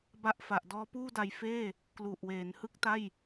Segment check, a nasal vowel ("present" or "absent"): absent